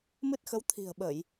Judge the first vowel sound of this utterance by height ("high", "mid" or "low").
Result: high